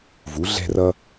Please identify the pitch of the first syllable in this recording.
rising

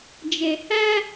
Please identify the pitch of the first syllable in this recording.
low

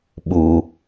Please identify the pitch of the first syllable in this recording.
low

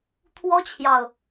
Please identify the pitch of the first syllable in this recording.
high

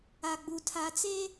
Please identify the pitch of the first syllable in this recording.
low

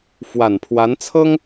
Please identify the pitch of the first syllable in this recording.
low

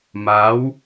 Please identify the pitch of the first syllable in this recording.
rising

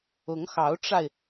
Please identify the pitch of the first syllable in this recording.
rising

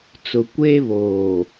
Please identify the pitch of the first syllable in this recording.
low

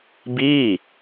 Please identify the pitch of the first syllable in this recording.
falling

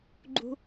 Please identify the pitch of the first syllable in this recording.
high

